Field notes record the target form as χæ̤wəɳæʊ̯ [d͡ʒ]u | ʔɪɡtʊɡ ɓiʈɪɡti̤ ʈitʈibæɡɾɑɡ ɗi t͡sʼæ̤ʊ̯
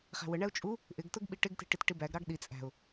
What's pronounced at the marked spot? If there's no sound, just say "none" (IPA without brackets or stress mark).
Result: t͡ʃʼ